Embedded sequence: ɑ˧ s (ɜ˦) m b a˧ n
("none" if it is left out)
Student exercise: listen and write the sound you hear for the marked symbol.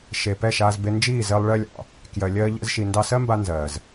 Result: ɜ˦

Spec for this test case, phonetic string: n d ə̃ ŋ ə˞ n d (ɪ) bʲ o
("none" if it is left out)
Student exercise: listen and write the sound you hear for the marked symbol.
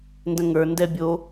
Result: ɛ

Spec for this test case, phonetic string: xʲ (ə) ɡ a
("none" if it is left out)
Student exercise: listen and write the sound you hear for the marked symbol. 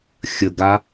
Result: ə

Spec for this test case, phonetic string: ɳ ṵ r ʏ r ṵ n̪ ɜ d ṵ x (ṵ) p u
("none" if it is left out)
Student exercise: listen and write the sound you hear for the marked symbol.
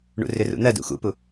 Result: ṵ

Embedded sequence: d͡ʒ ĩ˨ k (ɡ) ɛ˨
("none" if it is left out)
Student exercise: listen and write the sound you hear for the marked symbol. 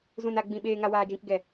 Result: ɡ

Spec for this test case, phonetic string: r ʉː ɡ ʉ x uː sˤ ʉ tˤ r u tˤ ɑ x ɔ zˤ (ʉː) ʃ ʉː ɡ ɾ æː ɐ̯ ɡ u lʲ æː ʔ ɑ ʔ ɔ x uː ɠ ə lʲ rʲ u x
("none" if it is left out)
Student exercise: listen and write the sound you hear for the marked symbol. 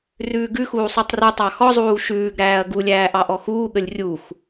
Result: uː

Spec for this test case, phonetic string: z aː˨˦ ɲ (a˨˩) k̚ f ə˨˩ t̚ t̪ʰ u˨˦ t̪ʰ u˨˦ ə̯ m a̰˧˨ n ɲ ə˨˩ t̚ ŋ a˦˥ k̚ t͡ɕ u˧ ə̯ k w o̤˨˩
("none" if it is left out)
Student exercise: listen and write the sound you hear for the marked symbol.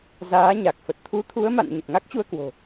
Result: a˨˩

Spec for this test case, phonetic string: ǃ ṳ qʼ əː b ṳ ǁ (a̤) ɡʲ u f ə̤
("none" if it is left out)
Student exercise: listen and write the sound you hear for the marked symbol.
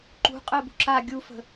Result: a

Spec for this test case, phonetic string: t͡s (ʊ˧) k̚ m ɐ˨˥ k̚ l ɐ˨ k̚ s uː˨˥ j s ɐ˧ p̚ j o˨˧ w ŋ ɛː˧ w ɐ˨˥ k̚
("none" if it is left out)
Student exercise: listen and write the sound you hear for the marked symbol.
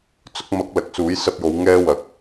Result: ʊ˧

